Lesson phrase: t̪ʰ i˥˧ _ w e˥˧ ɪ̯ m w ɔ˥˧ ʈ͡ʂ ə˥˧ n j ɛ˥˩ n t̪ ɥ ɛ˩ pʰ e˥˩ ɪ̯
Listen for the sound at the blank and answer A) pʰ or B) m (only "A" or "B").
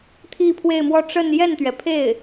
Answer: A